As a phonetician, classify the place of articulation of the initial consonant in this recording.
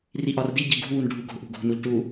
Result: alveolar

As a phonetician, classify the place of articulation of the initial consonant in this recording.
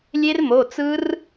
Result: alveolar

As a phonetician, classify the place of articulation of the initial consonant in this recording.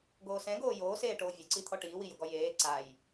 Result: velar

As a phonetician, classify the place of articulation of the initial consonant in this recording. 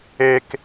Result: velar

